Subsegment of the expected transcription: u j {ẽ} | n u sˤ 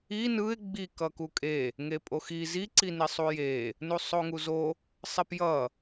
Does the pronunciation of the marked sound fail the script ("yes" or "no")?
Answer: yes